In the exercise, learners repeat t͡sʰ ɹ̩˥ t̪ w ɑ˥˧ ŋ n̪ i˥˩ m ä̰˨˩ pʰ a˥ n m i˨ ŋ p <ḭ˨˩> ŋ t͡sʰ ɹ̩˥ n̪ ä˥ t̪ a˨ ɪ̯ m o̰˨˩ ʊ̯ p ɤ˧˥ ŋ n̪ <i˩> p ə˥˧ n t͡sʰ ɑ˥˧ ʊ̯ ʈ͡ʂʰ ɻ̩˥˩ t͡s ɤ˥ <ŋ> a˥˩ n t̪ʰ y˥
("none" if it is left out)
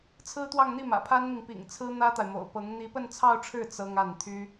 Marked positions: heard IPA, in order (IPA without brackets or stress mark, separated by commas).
ḭ˨˩, i˧˥, ŋ